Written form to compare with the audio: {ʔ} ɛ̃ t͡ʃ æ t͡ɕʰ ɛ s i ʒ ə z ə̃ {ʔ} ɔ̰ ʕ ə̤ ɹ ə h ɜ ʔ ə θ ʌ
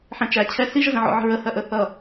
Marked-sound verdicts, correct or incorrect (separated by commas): incorrect, incorrect